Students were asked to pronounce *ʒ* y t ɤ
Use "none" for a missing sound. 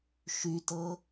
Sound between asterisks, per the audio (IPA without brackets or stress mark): ʃ